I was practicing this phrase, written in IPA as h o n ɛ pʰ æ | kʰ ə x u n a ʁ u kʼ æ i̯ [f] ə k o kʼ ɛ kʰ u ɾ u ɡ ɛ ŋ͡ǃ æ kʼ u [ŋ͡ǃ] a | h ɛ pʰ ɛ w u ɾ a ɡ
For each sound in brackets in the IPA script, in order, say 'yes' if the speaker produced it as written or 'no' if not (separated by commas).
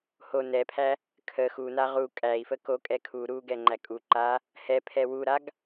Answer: yes, no